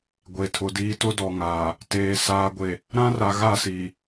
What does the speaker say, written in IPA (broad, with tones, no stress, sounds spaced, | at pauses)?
ɡʷ e˨ tʰ ʊ˨ d iː˦ t ʊ˦ d ɔ˨ ŋ aː˨ | t eː˨ s aː˨ ɡʷ e˨ | ɾ ã˦ r a˨ ɣ a˦˨ s iː˨